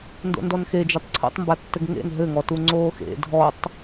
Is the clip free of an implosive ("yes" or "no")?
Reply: yes